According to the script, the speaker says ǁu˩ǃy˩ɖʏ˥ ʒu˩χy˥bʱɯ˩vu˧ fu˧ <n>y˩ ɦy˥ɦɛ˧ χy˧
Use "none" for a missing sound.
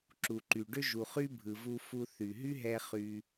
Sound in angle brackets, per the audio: θ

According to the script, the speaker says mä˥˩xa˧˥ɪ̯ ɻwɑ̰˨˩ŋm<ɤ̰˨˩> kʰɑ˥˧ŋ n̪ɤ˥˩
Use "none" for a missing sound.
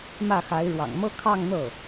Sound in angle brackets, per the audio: ɤ˥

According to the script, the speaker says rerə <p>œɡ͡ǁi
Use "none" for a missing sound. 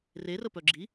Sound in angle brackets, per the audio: p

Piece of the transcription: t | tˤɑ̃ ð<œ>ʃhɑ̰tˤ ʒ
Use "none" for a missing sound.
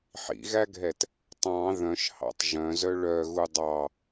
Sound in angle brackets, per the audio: œ̃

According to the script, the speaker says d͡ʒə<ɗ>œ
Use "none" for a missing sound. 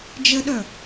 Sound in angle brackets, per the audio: ɗ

